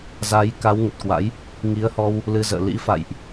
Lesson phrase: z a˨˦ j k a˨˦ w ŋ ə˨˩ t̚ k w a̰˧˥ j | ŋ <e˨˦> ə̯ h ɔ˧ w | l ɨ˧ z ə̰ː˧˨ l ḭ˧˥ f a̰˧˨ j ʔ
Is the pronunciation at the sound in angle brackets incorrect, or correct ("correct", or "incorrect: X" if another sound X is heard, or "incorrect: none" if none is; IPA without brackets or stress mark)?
incorrect: i˨˦